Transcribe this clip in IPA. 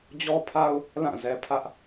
d͡ʑɔ˦pʰa˦ʊ̯ | lã˦˨zɛ˨pʰä˦ʔ

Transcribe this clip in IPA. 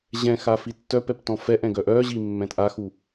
ʑɛ̃ xafitːœpɛp tɔ̃fɛʔɛ̃ ɡœʔœʑi mːɛ̃tʔaxu

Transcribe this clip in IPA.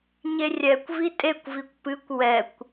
ɲerʲɛkʷ vitʼekʷvikʷ pɨkʷ wɛkʷ

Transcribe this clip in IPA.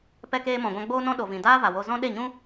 pɛ˧keː˧mɔ̃˨ɡʷã˧ ɡ͡boː˧nɔ̃˧ ɗo˨vĩ˨ daː˦va˨wo˧zɔ̃˦ ɗe˦˨ɲũ˦

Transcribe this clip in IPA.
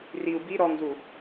riu̯ bi ɾɔŋzu

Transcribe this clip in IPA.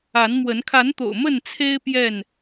a˨˦nmwə˨˦n kʰa˨˦nt̪o̰˨˩ʊ̯ mə˥˨nt͡sʰe˦ɪ̯ pjɛ˥˨n

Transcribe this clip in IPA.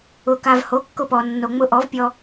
ʊ˩ka˩v ho˩˥kːʊ˧pɔ˩ nːo˩ŋ͡mʊ˧ʔɔ˩˥vpʲɔ˧

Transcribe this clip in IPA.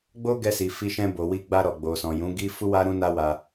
ɡ͡bo˦ɡɛ˧si˨ fi˧ʃɛ̃˧bo˨wi˧ ɡ͡ba˧ɾɔ˨ ɡ͡bo˨sɔ̃˨ jũ˨˦ɡi˦ fu˦wa˦ ɾũ˦na˦wa˧

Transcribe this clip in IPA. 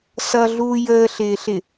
sʌɮuː jəːɬɪːɬɪ

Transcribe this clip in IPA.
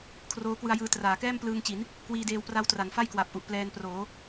kʰroː˦˥kwɯ˧a̯jɯː˧ traː˩˦kɛː˥˩mplɯː˧ŋt͡ɕi˩˦n | kwiː˧deː˧w pra˦˥wtra˩˦n fa˥˩jkwa˨˩p̚ʔu˨˩ʔ plɛː˧nproː˩˦

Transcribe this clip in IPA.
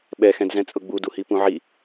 ɓɛxɛ̃dzɛ̃ t͡sʼʊɡ͡buduhi pũʕi

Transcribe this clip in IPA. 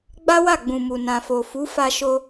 ɡ͡ba˦wa˦˨ɡ͡bũ˨mu˨ nã˨fo˨fu˨˦ fa˧ʃo˧

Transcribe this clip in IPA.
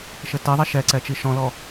ʃɘteðˤɛ ʃɛǀɛ t͡ʃiʃɔ̃lɔ

